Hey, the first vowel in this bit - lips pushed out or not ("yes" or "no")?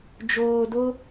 yes